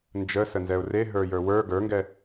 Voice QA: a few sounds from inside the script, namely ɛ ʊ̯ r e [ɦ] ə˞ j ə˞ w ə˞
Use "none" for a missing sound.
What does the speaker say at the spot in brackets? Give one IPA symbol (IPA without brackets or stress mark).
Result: ɦ